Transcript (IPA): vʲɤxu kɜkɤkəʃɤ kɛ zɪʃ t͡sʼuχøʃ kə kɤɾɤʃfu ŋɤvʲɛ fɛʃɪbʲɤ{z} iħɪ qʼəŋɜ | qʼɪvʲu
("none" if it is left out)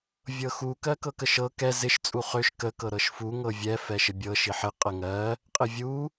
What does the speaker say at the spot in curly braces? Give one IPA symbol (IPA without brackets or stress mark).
ʃ